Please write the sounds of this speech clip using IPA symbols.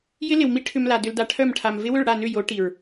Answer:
j ɪ˦ l ɪ˨ w m i˦ ʈʰ ʏ˧ m l a˨ d ʏ˧ l d a˧ ʈʰ œ˦˨ m ʈʰ a˨ m v ɪ˦ w ʏ˦˨ ɭ ɽ a˦˨ n ʏ˦˨ j o˨˦ ʈ i˨ ɹ

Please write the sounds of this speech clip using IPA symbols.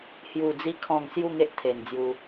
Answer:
h j u˨˩ d͡z i˧ kʰ ɔ̃˥˧ ŋ s j u˥˧ ŋ e˦ ʔ t̪ʰ e˨˩ n d͡z j u˧

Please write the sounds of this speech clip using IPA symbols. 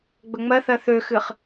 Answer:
ɡ͡b ɵ ŋ͡m ɜ θ ɜ θ ø x ɨ χ

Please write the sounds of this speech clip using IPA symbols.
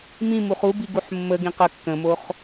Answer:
m ĩ m u χ u b i ɡ u ħ mː ə ɡ ĩ q ə kː ə̃ m o χ

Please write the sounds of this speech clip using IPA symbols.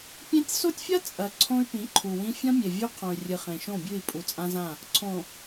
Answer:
pʲ ẽ˦ tʲ s o˦ tʲ fʲ ɐ˦ t͡sʼ ɐ˨ ǀʰ õ˦ y̯ p ĩ˨˦ ǃʰ u˨ w ĩ˦ fʲ ɐ̃˦ mʲ e˨ vʲ ʉ˦ qʰ õ˨ y̯ rʲ ɨ˨ χ ẽ˨ ʃ õ˦˨ bʲ ʉ˦˨ i̯ pʼ u˨ t͡sʼ ã˦ z ã˦˨ | ǀʰ õ˨

